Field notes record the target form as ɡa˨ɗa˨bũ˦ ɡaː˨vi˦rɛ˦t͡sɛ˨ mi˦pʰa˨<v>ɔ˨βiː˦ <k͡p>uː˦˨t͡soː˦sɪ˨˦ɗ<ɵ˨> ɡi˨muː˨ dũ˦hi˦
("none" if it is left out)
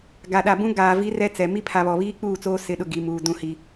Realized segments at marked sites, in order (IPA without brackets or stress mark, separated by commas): β, k͡p, ʊ˨